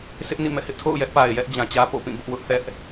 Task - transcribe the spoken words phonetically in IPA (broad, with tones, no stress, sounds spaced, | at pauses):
s ɪ˦ ʔ n ḭ˦˨ m ɛ̰˦˨ h ɪ˦ ʔ tʰ o̰˦˨ ʊ̯ j ɛ˦ ʔ p a˨ ɪ̯ j ɛ˦ ʔ d͡ʑ ã˨ t͡ɕ ä˦ p o̰˦˨ p ĩ˦˨ b ʊ˦ ʔ w ʊ˦ ʔ θ ɛ˦ ʔ